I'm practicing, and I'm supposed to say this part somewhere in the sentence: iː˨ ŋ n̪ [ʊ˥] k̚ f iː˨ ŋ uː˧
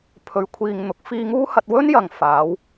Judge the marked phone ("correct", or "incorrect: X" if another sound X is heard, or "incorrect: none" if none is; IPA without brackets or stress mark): incorrect: ʊ˨